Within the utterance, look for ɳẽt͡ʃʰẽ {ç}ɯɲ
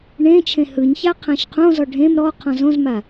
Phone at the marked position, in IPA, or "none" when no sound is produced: h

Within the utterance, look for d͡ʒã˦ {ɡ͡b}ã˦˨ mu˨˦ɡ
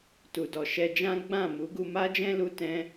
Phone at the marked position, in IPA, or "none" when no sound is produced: ɡ͡b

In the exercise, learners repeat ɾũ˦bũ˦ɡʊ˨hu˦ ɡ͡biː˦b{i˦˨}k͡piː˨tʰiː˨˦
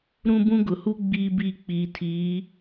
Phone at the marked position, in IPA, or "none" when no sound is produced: i˦˨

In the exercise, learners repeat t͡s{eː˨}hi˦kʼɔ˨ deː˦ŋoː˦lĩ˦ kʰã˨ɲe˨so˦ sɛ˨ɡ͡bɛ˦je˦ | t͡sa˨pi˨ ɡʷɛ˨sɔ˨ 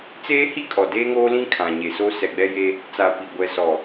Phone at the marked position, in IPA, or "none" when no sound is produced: eː˦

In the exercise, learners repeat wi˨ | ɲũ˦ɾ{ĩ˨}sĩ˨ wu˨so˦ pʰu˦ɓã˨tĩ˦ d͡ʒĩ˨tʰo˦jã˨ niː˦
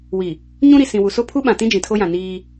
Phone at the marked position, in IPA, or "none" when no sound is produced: i˨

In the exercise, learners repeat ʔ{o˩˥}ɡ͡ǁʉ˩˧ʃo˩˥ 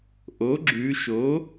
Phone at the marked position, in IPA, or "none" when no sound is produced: o˩˥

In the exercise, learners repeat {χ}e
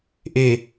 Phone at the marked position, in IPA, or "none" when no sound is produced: ʔ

